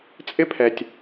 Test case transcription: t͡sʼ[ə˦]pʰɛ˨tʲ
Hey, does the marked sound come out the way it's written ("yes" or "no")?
no